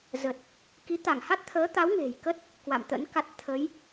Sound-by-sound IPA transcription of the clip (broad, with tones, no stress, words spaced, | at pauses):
zə˨˩t̚ | ki˨˦t̪a˧˩ŋ ha˦˥t̚t̪ʰəː˨˦t̪a˨˦w ŋe̤˨˩j kə˦˥t̚ | kwa̰˧˨m t̪ə̰˧˥nka˦˥t̚ t̪ʰə˨˦j